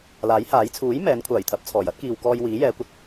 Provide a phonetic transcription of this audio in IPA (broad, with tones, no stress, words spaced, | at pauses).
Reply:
laː˨˥jhaː˨˥j t͡sʰuː˨˥j mɛː˨˥nkʷʰaː˨˩jt̪ʰɐ˨p̚ t͡sʰɔː˨˩jɐ˥t̚kiː˨wkɔː˧j wiː˨˥jɛː˨˧kʷɐ˧t̚